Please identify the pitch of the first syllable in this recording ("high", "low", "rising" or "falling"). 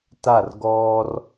falling